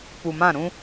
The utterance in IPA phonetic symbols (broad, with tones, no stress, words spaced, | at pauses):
pu˨mã˦˨ ɾũ˦